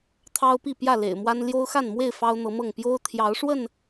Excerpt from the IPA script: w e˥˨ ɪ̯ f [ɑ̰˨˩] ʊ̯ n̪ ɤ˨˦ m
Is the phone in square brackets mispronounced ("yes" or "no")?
yes